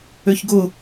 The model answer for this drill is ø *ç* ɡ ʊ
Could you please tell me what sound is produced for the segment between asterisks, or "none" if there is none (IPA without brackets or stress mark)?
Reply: ç